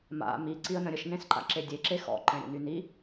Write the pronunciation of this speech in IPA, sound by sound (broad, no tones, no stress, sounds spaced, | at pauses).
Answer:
m a̰ m i ǀ i ə̯ n ə̃ ɾʲ ə ʃ n ẽ s ǃ a̰ ǁ e dʲ e ǁ e x ɔ̰ ǃ ɛ̃ ɾʲ ə̰ n y n i